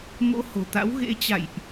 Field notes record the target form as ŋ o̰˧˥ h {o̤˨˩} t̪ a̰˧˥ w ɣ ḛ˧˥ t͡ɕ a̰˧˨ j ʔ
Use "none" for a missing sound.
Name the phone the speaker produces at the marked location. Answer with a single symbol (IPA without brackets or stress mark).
o̤˨˩